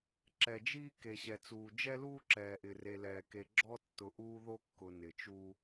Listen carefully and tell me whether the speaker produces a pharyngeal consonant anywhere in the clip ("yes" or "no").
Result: no